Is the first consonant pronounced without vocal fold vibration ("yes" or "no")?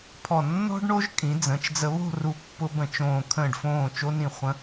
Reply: yes